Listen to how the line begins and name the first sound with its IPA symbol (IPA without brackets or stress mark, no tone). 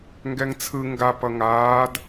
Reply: ŋ